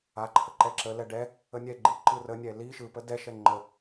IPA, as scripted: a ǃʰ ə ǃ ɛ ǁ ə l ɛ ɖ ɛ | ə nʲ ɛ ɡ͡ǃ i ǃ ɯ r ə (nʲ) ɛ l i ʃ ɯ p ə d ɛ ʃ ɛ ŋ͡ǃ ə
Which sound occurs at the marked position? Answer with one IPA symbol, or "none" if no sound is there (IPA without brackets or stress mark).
nʲ